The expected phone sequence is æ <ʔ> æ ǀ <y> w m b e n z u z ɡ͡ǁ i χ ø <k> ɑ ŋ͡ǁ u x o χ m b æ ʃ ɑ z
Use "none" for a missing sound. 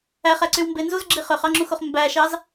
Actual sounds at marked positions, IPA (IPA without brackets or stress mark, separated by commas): χ, y, χ